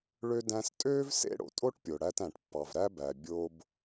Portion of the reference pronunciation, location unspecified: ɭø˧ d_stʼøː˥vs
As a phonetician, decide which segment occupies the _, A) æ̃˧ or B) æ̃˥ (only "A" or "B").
A